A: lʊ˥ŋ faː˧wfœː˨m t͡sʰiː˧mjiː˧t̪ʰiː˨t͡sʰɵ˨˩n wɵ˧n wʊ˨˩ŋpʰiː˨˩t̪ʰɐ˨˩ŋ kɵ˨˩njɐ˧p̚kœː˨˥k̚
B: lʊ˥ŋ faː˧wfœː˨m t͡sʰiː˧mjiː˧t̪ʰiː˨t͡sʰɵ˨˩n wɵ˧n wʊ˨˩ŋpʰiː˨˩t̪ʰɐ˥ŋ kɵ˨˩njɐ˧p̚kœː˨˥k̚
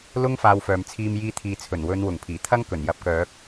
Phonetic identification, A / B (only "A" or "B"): B